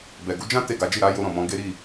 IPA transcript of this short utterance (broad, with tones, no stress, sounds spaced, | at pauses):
b ɛ˨ ɡ u˨˦ d͡ʒ ã˦ t e˦˨ ɡ a˨˦ d͡ʒ i˦˨ ɾ a˨˦ j o˧ ɾ ɔ̃˨ m ɔ̃˨˦ ɡ e˦ ɾ i˦˨